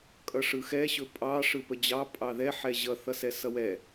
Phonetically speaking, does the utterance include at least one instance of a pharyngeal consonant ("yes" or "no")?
yes